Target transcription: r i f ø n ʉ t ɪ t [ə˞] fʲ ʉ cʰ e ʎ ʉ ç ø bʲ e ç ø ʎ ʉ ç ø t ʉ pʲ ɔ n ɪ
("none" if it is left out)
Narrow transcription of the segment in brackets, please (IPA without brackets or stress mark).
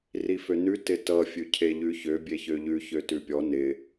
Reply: ʌ